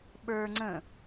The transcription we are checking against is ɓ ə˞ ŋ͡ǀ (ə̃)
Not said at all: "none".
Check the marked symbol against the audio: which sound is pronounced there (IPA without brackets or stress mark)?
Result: ə̃